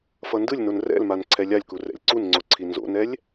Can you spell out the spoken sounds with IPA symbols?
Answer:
f ʌ n d ɯ lʲ n o n r ɛ̰ l m a n ǀʰ ɛ lʲ a lʲ k u r ɛ̰ lʲ ǀ u n ŋ͡ǀ o ǀʰ i n z o̰ n ɛ lʲ

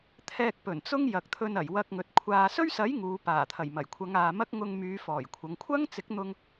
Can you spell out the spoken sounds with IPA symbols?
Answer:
t̪ʰ ɛː˧ k̚ p ɵ˨˩ n t͡s ʊ˥ ŋ j ɐ˨ k̚ t̪ʰ ɵ˧ n ɐ˨˩ j w ɐ˧ k̚ ŋ ɵ˨ t̚ kʷʰ aː˧ s ɵ˥ ɥ s ɐ˨˥ j ŋ uː˨˧ p aː˨˩ t̪ʰ ɐ˨˩ j m ɐ˨˩ j kʷʰ ɐ˨˧ ŋ aː˨ m ɐ˥ k̚ ŋ ʊ˧ ŋ m yː˨˧ f ɔː˨˩ j kʷʰ ɐ˨˧ ŋ kʷʰ ɐ˥ ŋ t͡s ɪ˨˥ k̚ n̪ ʊ˧ ŋ

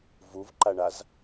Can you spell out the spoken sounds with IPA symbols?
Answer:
v u v ǃ a ɳ a z

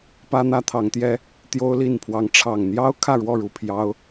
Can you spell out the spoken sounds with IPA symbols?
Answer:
p ä˦ n̪ ä˦ t̪ʰ ɑ˨˦ ŋ t̪ j ɛ˦ | t̪ j o˦ ʊ̯ l i˥˨ n pʰ w ɑ˨˦ ŋ ʈ͡ʂʰ ɑ˨˩ ŋ n̪ j ɑ˦ ʊ̯ kʰ ä˥˨ ɻ w ɔ˥˨ ɻ u˨˩ pʰ j ɑ˦ ʊ̯

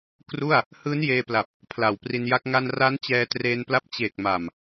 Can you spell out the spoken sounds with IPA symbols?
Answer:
k r u˥˩ a̯ | h ɯː˦˥ n j eː˧ p l a˨˩ p̚ | pʰ l a˨˩ w p r i˧ n j a˦˥ k̚ ŋ a˧ n r a˦˥ n t͡ɕ ɛː˧ t r eː˧ n p l a˦˥ p̚ t͡ɕ eː˨˩ k̚ m a˨˩ m

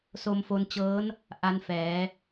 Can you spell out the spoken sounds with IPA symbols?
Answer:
s o˧ m f o˧ n t͡ɕ ɤː˦˥ n | ʔ a˦˥ n f ɛː˩˦

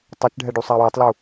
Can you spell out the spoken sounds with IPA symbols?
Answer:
tˤ ɛ t͡ʃ ɖʱ ɛ ɖ u sˤ a w e tˤ l u

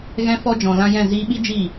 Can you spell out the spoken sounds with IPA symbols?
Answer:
ɣ ɛ̃˧ f ɔ˧ d͡ʒ ɔ̃˨ l ã˧ j ɛ̃˦˨ z iː˧ ɓ i˦ d͡ʒ i˦˨

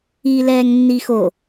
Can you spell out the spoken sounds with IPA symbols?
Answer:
iː l ɛː ŋ nː i x o

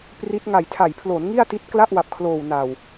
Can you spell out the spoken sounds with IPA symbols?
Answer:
p r i˦˥ t̚ ŋ a˨˩ j tʰ a˨˩ j pʰ l o˩˦ n ŋ i˥˩ a̯ t i˦˥ t̚ k l a˥˩ ʔ w a˨˩ p̚ kʰ l oː˨˩ w n a˨˩ w

